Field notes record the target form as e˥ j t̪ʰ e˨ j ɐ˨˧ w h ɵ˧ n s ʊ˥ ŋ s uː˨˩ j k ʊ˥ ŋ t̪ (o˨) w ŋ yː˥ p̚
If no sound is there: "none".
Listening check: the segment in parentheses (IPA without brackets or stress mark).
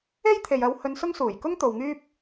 o˨